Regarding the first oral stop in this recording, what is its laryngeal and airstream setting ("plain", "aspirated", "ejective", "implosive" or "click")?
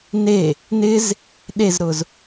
implosive